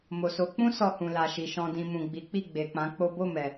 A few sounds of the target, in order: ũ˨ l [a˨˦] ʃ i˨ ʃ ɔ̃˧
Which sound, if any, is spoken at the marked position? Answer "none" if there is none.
a˨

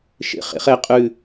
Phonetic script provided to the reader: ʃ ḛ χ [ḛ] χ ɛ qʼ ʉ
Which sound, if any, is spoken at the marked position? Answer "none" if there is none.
ḛ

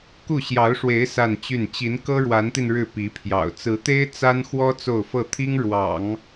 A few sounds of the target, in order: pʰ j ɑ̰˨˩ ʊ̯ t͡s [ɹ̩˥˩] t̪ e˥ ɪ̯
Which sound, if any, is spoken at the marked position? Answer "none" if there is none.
ɹ̩˧˥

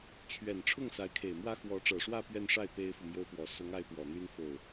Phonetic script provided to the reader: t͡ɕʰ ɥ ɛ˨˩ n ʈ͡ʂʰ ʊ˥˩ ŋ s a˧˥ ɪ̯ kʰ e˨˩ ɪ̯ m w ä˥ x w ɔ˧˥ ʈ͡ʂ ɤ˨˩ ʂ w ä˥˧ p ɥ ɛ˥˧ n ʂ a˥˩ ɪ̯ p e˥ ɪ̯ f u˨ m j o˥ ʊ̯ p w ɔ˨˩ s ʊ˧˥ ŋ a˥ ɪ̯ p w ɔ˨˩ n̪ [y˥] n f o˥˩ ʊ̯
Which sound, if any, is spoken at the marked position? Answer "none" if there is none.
y˥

